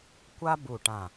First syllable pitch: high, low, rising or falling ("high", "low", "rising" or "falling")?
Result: high